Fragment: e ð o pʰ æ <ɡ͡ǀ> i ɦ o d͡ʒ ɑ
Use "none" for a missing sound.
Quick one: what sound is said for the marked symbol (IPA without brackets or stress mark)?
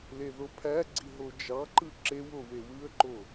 ɡ͡ǀ